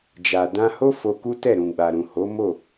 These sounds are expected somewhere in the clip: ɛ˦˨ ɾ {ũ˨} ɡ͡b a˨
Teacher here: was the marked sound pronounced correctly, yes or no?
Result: yes